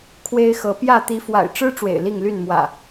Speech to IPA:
kʰ w e˦ ɪ̯ x ɤ˨˦ p j ä˥˨ t̪ i˨˦ f w a̰˨˩ ɪ̯ ʈ͡ʂ ɻ̩˦ ʈ͡ʂ w ḛ˨˩ ɪ̯ l i˥˨ ŋ l y˥˨ n m w ä̰˨˩

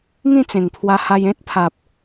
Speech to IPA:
ŋ ĩ˥˧ t͡s ẽ˨˩ ŋ pʰ w a˧ h a˧ j ẽ˦ t̚ pʰ a˨ p̚

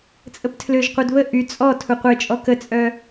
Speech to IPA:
t͡sʼ ə p tʰ l ø ʒ qʷ œ d β ə ʔ y t͡sʼ ɔ tʰ u qʷ e t͡ʃʼ ɔ k ə t͡sʼ œ

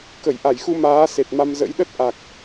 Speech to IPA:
k ə˧˩ j ʔ a˧˩ j x u˧ m aː˨˦ s e˨˩ t̚ m a˧ m z ə̰˧˥ j ɗ ə˦˥ t̚ ʔ a˨˩ k̚

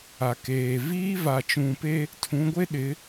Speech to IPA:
a˨ k eː˨ v iː˦ v a˨ t͡ʃ ũ˨ p e˦ | tʰ ũ˨˦ ɡʷ e˦ ɗ ɪ˨˦

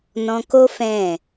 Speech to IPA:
n ɔ̃˧ k o˦ f ɛ̃˦˨

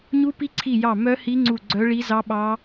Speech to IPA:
ɲ u˦˥ p i˦˥ ǀʰ i˦˨ j ɑ˦˨ m œ˦˥ h i˦˥ ŋ͡ǀ u˦˨ ɡ͡ǀ œ˦˥ ɭ i˦˥ z ɑ˦˥ ɓ ɑ˦˥

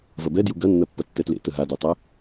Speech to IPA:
v ɐ b ɛ d j u ɡ ɐ nː ɐ pː ɐ tː ɛ t l ḛ t ə ɦ a d y tˤ ɛ

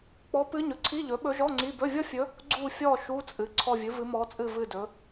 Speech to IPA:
k͡p ɔ˧˥ p ɨ˧˥ ɲ ɵ˩˥ ǀʰ i˧˥˧ ʎ ɵ˩˥ ɓ ɵ˧˥ ʒ ɔ˧˥˧ ŋ͡ǀ i˧˥˧ b ɵ˧˥˧ vʲ ɔ˥ fʲ ɵ˧˥ | ɡ͡ǀ u˦˨ fʲ ɔ˦˨ ʃ u˧˥˧ t͡sʼ ɨ˩˥ ǀʰ ɔ˦˨ vʲ ɨ˩˥ v ɨ˧˥ m ɔ˧˥ t͡sʼ ɨ˦˨ v ɨ˦˨ d ɵ˩˧

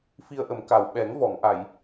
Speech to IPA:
f i˧ ə̯ ʔ ə˨˩˦ m k a˨˩ w ɓ ɛ˨˩˦ ŋ v ɔ˨˩˨ ŋ ʔ a˨˩˨ j

